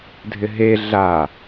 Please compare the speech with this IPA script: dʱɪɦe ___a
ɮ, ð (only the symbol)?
ɮ